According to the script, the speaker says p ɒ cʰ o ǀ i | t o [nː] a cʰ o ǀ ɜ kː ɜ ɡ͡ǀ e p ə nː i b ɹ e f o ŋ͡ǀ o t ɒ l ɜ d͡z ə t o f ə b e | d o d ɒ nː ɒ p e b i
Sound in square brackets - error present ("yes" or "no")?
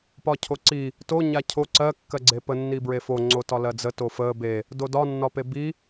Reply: yes